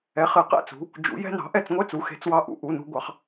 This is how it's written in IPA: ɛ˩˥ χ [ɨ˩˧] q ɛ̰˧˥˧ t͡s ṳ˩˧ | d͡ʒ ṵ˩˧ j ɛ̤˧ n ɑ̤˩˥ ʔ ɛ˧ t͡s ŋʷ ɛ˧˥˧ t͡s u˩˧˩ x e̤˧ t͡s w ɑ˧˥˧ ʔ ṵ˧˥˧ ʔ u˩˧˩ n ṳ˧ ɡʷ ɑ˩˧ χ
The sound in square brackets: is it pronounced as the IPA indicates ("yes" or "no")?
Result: yes